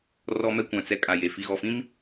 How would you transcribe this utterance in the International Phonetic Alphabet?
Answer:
r ɔ˦ m ɛ˦ kʷ ã˨ t͡s ɛ˦ kʼ a˨ j e˨ f i˨ ɣ ɔ˨ f ĩ˦ m

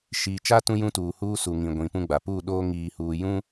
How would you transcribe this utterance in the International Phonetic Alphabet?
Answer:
ʃ iː˨ t͡ʃ a˦ t ũ˦ j ũ˦ t uː˨ h uː˦ s u˨ ŋ ĩ˨ ɡʷ ĩ˨ p ũ˦ ɡ͡b a˨ p uː˦˨ ɗ oː˦ ŋ iː˨ h uː˨ j ũ˦

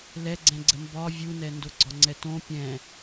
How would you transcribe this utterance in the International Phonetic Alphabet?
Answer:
l ɛ ɡ͡ǀ ɛ̃ ɡ͡ǀ ə m b ɒ vʲ u n ɛ n d o ɡ͡ǀ ɒ ŋ͡ǀ ɛ t õ pʲ ɛ̃

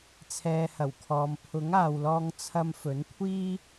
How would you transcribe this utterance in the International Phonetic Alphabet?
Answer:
t͡sʰ ɛː˨ h ɐ˨˩ w kʰ ɔː˨ m pʰ ʊ˨˥ ŋ aː˨ w l ɔː˧ ŋ t͡sʰ ɐ˧ m f ɵ˨˥ n kʷʰ iː˥

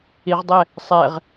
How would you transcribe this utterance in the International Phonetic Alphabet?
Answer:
i ʁ dˤ ɛ | sˤ ɛ ʁ

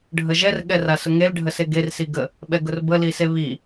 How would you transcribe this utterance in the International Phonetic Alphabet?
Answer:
ɖʱ ə ʒ ɛ r ɠ ɛ r a s ʊ ŋ e l ɖʱ ə s e ɡ e r s i ɡ ə | ɓ ɛ ɡ ʊ r b ə l i s e β i

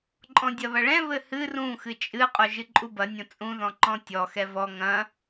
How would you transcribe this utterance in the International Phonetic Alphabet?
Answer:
ǃʼ ɔ̃ dʲ ɐ β ɐ ɭ ɛ̃ β ɘ h ɨ r ũ x ɨ t͡ʃʼ ɨ qʼ o ʒ ɨ ǃʼ u b ɐ nʲ õ t͡sʼ ũ ð ɔ̃ ǃ ɔ̃ tʲ ɔ x ɛ v ɔ ŋ ɐ̃

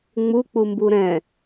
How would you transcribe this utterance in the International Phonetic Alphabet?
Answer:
ŋ͡m u k͡p u m b u ɾ ɛ̃

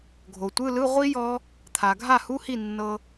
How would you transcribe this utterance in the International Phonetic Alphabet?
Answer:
ɡʱ o˩ tʷ ɯ˧˥˧ l ɯ˧˥˧ ʁʷ i˦˥ j ɔ˦˥ | t̪ʰ a˩ ɡʱ a˥˩ h u˧˥˧ h i˥˩ nː ɤ˧

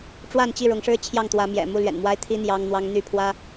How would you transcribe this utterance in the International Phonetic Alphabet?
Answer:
ʈ͡ʂ w a˥˨ n t͡ɕ i˥˨ ɻ ʊ˨˦ ŋ ʂ ɻ̩˦ t͡ɕʰ j ɑ˥˨ ŋ t̪ w ä˨˦ m j ɛ̰˨˩ m u˥˨ l ɥ ɛ̰˨˩ n m w a˦ ɪ̯ t̪ʰ i˦ n̪ j ɑ˦ ŋ n̪ w ɑ˦ ŋ n̪ y˥˨ pʰ w ä˦

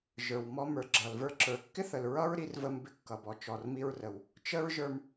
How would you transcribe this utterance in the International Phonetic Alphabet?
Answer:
ʒ ə˞˩ w m ɔ˧ m ə˞˩ ɡ͡ǁ ʌ˩ l v ə˞˧ ǁ ə˞˩ kː ɪ˥ θ ə˩ l ɹ ʌ˥ ɹ ɾ i˧ r v ə˧ m b ɪ˧ kː ʌ˩ b ɔ˩ t͡ʃ ɔ˩ r m i˧ ɹ r ə˩ w | t͡ʃ ə˥ ɹ ʒ ə˞˧ m

